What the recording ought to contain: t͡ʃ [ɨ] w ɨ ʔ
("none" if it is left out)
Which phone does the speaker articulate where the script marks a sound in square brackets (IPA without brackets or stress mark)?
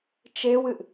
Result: e